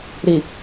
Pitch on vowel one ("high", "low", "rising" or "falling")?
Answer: low